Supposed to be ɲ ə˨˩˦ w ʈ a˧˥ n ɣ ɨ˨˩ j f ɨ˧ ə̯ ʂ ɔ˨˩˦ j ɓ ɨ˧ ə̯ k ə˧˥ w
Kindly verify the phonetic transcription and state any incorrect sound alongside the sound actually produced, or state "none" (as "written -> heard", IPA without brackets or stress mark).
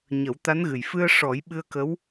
ʈ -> t̪